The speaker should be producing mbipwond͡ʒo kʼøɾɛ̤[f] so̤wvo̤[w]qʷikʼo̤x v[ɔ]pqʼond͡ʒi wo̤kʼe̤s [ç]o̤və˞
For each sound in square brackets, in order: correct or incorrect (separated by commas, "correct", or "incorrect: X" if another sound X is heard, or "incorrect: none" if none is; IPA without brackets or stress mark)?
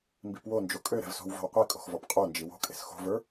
incorrect: v, correct, correct, incorrect: x